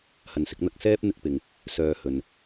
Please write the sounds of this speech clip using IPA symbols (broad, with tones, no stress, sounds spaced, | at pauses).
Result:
h ɐ˨ n s ɪ˧ k̚ n̪ ɐ˧ k̚ s ɛː˥ p̚ n̪ ɪ˧ k̚ p ɪ˨ ŋ | s œː˨ h ɵ˨ n